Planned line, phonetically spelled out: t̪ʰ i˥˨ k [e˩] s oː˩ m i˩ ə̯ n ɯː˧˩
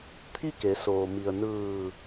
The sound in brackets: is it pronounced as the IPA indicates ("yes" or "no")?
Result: no